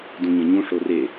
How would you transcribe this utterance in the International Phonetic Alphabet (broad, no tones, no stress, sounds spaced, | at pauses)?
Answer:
d ũ ɲ ẽ ɲ ũ ʂ o r e